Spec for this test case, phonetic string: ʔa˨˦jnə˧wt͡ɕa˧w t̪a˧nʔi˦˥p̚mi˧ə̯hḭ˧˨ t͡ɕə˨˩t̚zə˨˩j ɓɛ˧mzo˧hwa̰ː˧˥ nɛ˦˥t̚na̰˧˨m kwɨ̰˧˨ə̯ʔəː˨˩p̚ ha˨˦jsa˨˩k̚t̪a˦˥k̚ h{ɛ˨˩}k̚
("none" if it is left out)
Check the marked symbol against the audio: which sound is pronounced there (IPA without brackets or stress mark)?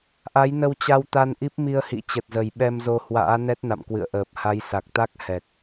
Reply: ɛ˨˩